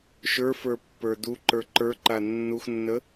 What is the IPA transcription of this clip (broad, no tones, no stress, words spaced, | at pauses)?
ʃə˞fə˞pːə˞ duǃə˞ ǃə˞ǃa nːuxnːə